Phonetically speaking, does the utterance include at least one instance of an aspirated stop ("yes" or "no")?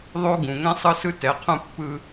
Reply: yes